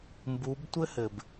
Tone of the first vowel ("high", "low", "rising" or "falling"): rising